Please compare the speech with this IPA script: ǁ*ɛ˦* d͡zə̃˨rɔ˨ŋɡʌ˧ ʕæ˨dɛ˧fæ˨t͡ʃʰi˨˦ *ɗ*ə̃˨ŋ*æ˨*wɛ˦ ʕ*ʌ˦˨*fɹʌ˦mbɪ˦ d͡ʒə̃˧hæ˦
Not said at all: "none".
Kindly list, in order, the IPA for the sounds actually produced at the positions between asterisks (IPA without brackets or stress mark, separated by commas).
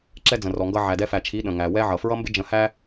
ɛ˦, ɗ, æ˨, ʌ˨